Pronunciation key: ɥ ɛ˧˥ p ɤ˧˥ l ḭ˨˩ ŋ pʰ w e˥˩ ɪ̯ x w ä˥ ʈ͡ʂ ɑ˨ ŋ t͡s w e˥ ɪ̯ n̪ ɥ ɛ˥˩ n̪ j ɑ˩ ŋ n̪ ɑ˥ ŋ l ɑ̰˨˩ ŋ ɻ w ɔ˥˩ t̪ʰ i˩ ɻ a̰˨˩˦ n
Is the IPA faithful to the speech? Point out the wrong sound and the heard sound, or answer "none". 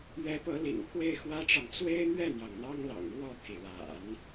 none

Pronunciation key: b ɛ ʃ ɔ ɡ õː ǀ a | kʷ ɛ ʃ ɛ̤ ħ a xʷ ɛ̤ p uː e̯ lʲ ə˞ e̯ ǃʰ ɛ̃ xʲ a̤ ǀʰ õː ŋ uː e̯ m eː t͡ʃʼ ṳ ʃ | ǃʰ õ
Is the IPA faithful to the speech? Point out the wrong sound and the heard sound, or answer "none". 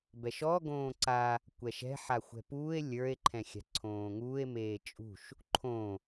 none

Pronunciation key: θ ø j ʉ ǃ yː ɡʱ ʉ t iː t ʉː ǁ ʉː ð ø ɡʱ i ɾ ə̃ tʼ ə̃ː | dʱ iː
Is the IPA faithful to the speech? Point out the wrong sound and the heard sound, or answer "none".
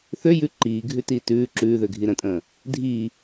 yː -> iː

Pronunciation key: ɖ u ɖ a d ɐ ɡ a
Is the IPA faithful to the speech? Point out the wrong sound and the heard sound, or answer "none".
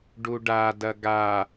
none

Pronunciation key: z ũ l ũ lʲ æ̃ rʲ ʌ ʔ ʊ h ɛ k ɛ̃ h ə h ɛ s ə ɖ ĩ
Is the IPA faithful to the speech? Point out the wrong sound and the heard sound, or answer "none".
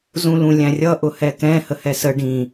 none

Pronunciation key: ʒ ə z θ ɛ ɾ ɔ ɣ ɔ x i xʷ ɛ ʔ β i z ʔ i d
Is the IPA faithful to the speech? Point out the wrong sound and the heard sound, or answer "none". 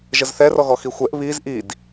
ɾ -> r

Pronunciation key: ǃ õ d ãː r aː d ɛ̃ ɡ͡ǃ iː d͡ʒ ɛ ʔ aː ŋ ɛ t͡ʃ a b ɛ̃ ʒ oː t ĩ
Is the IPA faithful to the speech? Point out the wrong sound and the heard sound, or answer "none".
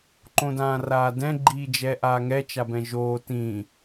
none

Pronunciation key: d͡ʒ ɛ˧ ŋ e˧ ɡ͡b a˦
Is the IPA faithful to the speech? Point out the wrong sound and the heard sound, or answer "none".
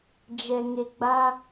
none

